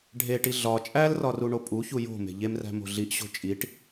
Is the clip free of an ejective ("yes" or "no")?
no